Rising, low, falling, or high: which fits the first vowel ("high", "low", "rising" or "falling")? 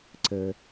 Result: low